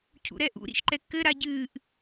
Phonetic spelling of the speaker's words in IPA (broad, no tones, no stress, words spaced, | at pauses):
cʰṵɾɛʔṵ ɾḭʃǃɛkːɘ ɾaɟɨːʔ